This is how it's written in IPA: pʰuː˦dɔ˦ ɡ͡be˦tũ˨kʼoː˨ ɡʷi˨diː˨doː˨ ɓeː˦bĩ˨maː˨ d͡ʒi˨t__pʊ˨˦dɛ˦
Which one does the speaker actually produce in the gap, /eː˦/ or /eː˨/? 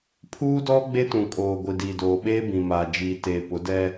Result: eː˨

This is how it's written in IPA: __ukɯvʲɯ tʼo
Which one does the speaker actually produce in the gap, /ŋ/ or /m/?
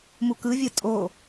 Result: m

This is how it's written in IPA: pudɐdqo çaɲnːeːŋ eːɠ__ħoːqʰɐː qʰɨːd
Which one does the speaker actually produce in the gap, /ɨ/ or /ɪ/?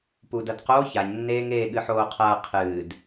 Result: ɨ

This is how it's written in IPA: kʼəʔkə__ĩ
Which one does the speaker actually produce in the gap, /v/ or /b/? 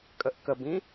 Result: b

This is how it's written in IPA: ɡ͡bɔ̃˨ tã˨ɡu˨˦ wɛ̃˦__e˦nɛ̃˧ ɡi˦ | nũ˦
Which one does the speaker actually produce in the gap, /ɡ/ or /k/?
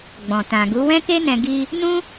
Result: k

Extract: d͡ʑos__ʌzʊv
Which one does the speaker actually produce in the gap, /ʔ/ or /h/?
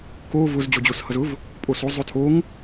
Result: h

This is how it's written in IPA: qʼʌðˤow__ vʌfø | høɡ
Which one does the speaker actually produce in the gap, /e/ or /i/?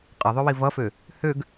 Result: i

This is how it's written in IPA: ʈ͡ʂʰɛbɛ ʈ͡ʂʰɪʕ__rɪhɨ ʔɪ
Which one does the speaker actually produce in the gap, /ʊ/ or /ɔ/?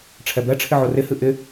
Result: ʊ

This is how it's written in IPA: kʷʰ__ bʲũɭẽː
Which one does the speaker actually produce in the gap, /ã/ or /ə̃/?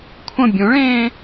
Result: ə̃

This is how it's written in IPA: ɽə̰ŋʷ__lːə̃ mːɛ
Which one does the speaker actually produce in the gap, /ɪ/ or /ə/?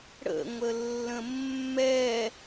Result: ə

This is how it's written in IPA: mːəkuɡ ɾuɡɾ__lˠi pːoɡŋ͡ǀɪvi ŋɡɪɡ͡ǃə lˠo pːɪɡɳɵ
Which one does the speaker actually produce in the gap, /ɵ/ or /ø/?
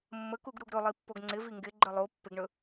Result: ɵ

